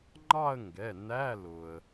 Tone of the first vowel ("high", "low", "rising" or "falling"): falling